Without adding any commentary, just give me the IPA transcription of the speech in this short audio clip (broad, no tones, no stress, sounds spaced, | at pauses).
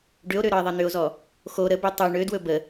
ɖ ʏ o̯ ɾ ø ɾ ɒ e̯ ðˤ ɛ n̪ ʏ o̯ z ɔ | x o ɾ ə b ø tˤ u ɳ ø d w ɵ b ə